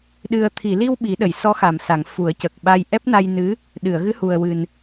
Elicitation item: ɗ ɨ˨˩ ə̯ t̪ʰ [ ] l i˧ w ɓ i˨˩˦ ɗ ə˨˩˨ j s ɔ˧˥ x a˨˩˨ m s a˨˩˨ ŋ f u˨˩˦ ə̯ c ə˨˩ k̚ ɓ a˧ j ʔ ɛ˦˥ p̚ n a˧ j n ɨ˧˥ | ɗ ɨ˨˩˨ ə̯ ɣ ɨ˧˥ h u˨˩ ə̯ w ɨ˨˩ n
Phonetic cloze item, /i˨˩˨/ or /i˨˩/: i˨˩˨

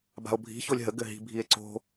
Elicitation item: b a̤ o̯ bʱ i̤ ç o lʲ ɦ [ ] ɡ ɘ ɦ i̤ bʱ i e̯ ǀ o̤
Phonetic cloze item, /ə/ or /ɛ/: ə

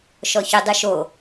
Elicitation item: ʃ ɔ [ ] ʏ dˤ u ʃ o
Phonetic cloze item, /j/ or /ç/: ç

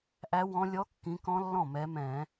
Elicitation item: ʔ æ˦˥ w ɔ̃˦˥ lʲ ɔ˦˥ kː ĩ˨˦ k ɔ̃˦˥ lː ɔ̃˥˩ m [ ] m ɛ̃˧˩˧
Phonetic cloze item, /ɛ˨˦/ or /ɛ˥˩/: ɛ˨˦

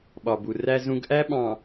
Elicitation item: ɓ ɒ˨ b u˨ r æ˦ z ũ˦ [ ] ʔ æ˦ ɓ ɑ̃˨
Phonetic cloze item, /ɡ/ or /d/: ɡ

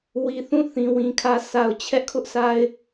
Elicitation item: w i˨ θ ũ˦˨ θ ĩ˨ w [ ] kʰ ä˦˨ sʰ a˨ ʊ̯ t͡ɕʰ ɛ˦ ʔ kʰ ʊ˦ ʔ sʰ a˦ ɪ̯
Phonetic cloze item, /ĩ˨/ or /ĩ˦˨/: ĩ˨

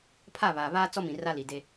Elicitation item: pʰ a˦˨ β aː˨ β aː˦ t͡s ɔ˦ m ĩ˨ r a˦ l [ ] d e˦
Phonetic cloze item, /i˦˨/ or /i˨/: i˨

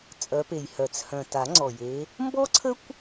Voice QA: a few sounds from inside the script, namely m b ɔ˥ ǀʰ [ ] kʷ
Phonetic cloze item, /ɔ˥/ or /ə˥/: ə˥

